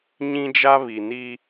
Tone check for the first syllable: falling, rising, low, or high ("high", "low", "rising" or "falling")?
high